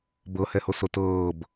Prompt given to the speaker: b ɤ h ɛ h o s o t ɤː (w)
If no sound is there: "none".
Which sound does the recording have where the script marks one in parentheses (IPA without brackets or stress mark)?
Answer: b